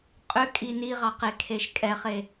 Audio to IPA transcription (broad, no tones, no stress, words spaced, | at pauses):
qʼʏkʼi niʁɑqekʰeʃ kʼɛχe